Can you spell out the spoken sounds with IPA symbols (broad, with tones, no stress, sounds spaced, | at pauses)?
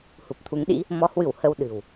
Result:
h u˨˩ p̚ t̪ʰ u˨˦ ŋ ɗ ḭ˧˥ | m ɔ˨˦ h w ɨ˧˩ w h ə˧ w ɗ ɨ̤˨˩ w